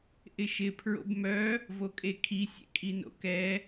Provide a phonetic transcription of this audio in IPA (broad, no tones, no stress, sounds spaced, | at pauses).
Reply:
ʔ ɪ ʃ ɪ pʰ ɹ o̰ b m œ | v o kʼ e kʰ i sʲ ḛ kʼ i n o̰ k ɛ